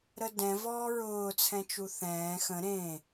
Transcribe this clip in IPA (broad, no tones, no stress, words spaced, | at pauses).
ɾədɛ̃ vɔːɹʊː t͡sʰɛ̃t͡ʃuθɛ̃ː xə̃ ɾẽ